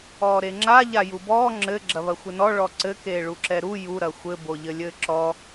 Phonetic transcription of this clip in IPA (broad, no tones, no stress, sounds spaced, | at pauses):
ɔː ɾ e ŋ͡ǁ a ʎ a j u b ɔː ŋ͡ǁ ɘ ɡ͡ǁ ɐ β ɐ xʷ ɘ n ɔ ɭ ɔ ǀ ɘ k eː ɭ u ǁ ɛ ɾ u j u ɾ ɐ xʷ ɘ b o ʎ ɘ lʲ ɘː ǁ ɔ